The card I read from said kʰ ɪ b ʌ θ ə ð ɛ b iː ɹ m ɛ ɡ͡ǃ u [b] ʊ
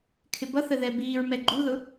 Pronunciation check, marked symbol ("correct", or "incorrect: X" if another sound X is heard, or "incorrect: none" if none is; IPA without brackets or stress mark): incorrect: ð